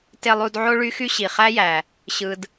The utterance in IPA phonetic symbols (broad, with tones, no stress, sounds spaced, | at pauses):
t e˦ lˠ u˦ d ʕ o˥ ɭ y˥ x y˥ ɕ i˨ χ æ˥ j æ˨ | ɕ ɯ˥ d